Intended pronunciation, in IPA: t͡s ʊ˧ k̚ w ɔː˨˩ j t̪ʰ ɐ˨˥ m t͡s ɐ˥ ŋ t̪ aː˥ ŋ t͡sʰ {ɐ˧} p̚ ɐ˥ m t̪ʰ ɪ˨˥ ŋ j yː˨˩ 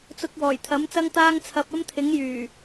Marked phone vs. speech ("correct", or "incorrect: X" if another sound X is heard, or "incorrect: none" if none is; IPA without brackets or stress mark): correct